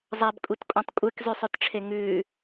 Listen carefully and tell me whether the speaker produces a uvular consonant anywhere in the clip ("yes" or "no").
no